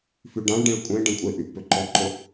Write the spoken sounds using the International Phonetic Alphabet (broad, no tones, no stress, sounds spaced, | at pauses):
f y ɖ ã ɭ ɖ ẽ ɭ kʷʼ ẽ ɖ ẽ kʷʼ e ʔ y ʔ p ø ǃ ɔ ǃ ʊ